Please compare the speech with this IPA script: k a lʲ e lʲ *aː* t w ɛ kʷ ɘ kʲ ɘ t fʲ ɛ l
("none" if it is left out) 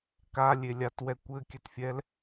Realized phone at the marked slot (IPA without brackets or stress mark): a